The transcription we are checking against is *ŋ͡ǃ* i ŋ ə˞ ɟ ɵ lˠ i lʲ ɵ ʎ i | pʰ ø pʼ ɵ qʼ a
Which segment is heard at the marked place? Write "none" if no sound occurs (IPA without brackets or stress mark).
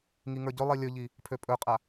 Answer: ŋ